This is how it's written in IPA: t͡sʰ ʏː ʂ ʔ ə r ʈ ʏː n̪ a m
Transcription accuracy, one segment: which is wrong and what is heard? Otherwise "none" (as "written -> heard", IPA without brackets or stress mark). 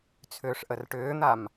none